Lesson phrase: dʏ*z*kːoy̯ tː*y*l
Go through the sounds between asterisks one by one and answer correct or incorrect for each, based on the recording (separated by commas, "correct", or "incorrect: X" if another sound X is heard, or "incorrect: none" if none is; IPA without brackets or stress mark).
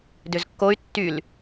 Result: correct, correct